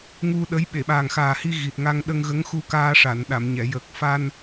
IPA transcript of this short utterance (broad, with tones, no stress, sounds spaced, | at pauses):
ŋ u˧ ɗ ə˧˥ j ɓ e˨˩˨ ɓ aː˨˩ ŋ x aː˨˩ h i˧ ɣ i˨˩ t̚ ŋ a˧ ŋ ɗ ə˧ ŋ ɣ ə˧˥ ŋ x u˧ k aː˧ ʂ a˨˩˨ n ɗ a˨˩˨ m ɲ ɛ˨˩˨ j əː˨˩ k̚ f a˧ n